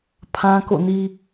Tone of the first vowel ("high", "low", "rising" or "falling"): high